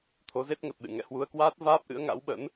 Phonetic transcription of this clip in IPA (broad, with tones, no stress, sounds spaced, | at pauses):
t̪ʰ o˨˦ z e˦˥ t̚ ŋ ə˨˩ t̚ ɗ ɨ̰˧˨ ŋ ɛ̰˧˨ h w u˧ ə̯ k w aː˦˥ t̚ v aː˦˥ p̚ ʔ ɨ̰˧˥ ə̯ ŋ a̰˧˥ w ɓ ə̰˧˥ n